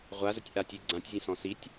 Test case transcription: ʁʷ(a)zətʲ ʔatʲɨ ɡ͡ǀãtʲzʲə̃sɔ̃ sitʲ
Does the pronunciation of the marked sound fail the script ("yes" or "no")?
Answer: no